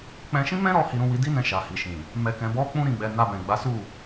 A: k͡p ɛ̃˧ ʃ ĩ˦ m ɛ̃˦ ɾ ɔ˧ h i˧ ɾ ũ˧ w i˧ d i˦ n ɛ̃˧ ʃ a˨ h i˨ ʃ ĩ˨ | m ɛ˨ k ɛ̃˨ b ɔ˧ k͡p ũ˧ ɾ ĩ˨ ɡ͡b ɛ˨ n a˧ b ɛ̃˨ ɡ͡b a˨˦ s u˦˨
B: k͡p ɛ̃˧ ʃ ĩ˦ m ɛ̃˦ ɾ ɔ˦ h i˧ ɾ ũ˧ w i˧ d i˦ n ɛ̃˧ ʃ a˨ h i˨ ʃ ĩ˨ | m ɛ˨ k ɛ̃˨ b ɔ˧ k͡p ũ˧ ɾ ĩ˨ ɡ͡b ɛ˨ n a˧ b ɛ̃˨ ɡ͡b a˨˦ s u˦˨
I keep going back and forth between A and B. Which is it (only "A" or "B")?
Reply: B